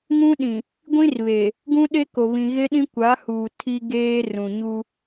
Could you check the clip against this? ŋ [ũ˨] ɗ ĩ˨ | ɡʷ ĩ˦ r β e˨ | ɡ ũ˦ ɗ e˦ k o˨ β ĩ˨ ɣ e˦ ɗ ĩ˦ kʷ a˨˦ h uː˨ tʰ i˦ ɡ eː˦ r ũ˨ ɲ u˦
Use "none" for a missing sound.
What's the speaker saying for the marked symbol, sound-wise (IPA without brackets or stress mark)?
ũ˦